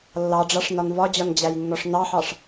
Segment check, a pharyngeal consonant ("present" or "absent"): present